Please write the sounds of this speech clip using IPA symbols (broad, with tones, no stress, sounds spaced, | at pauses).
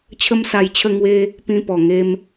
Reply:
t͡ɕʰ ə˦ m s a˧ j t͡ɕʰ ə˥˧ ŋ w e˦ | p ĩ˧ p ɔ˨˩ ŋ e˧ m